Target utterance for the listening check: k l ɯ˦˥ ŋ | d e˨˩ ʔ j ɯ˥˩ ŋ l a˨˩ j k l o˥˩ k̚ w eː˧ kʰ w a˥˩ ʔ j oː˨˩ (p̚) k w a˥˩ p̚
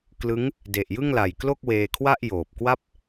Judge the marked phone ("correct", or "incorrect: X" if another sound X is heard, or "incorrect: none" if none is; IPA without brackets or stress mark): correct